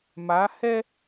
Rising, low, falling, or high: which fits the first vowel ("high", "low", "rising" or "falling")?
rising